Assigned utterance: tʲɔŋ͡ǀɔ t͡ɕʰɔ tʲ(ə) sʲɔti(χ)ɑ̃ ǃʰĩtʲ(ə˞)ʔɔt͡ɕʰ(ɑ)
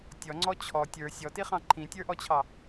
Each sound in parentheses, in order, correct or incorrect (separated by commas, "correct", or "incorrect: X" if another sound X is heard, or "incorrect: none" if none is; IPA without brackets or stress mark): incorrect: ə˞, correct, correct, correct